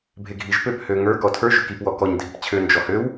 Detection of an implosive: absent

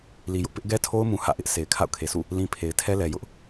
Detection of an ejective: absent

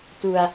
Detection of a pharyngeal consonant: absent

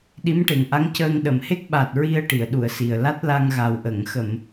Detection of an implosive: present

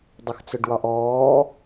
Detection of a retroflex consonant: present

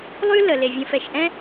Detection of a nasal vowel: present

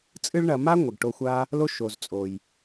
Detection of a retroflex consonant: present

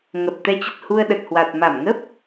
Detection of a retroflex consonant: absent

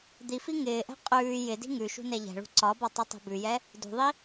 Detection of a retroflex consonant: present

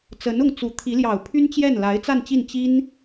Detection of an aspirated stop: present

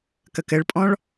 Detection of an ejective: present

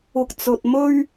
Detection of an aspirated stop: absent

